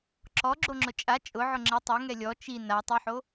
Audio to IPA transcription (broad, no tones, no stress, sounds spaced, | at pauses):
ǁ ɔ ɡ͡ǁ o ŋ͡ǁ ʊ t͡ʃʼ a t͡ʃʼ ʊ ʕ ʊ ŋ͡ǁ ɪ tˤ ɛ ŋ ɛ lʲ ɔ t͡ʃ i n a tˤ i ħ o